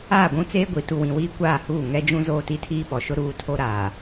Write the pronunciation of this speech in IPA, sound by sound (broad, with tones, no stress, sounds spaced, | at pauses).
aː˦˨ ɡʷ ũ˦ t͡s eː˦ ɡʷ i˨˦ t u˨ w ĩ˨ w iː˦ kʷ aː˦˨ h uː˦˨ ŋ ɛ˦ d͡ʒ ũ˦ z oː˦˨ t i˦ tʰ iː˦ ɓ ɔ˨ ʃ ʊ˦ ɾ uː˦ tʰ o˦ ɾ aː˨